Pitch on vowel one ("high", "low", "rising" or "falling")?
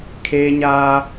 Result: high